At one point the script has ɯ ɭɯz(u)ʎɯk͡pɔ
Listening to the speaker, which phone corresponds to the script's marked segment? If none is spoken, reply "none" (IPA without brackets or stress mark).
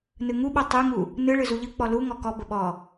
u